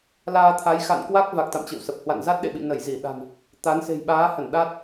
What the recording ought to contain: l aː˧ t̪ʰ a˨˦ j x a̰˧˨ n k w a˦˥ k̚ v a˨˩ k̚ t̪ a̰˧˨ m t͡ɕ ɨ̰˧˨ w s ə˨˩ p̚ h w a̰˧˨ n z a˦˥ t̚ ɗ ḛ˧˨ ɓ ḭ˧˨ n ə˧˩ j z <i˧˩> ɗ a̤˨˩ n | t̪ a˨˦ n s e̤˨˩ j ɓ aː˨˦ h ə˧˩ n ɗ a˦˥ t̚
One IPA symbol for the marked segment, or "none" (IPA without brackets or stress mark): i˧˩